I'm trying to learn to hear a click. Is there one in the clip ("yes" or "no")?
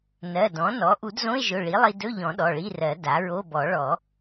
no